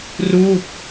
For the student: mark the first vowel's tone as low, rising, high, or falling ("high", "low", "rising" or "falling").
falling